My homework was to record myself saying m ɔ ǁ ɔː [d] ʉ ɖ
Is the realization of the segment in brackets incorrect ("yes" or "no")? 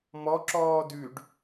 no